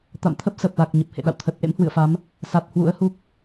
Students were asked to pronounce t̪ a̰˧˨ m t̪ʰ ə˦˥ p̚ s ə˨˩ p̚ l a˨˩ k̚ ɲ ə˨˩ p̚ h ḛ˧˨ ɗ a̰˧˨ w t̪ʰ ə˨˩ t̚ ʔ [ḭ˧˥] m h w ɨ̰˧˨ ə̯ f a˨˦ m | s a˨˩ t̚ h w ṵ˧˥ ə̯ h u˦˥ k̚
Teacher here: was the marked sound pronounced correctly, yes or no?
no